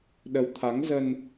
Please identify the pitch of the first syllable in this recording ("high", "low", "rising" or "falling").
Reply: rising